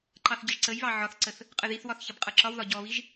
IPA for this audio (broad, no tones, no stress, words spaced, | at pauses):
ǃɑθɟəʒǀəjβɑ ʕɒθǀəθ | qʼəðiθwɒθ çʌbqʼʌǁɒwðɒ ɟɔβiʒ